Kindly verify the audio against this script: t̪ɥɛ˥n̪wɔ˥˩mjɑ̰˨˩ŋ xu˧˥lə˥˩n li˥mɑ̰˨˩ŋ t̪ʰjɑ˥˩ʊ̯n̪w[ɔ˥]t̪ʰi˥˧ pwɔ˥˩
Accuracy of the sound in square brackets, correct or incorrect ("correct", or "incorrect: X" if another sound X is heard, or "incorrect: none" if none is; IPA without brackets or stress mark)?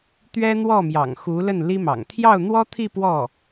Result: correct